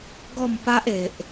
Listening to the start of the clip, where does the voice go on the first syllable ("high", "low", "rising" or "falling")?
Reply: falling